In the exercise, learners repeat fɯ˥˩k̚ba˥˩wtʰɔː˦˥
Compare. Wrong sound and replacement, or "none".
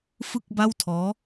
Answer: none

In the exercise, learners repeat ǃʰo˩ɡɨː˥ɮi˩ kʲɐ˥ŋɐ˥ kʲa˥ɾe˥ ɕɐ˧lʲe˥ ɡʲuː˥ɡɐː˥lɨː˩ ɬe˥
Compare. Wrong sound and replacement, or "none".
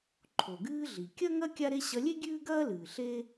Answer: uː˥ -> ʉː˥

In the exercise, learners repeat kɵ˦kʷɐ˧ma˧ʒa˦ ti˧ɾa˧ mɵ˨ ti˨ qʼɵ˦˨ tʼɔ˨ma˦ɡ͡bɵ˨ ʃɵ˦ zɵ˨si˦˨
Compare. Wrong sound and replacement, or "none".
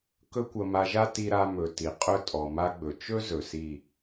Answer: ʃ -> t͡ʃ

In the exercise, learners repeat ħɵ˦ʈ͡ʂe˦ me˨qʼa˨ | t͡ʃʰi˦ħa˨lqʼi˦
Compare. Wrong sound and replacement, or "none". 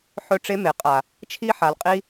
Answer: none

